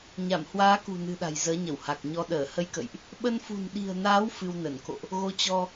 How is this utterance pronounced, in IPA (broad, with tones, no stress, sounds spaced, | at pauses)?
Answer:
ɲ a˧˩ m h w aː˨˦ k ṳ˨˩ n ɨ̤˨˩ ɗ a̤˨˩ j z əː˨˦ ɲ ə˧˩ w h a˨˩ k̚ ɲ ɔ˧ ɗ əː˧˩ h ə˧ j k ə̰˧˨ j ʔ | ɓ ə˧ n f ṳ˨˩ n ɗ i̤˨˩ ə̯ n aː˨˦ w f ɨ˧ w n ə˧˩ n k o̰˧˨ ʔ | ɣ o˧ t͡ɕ ɔ˧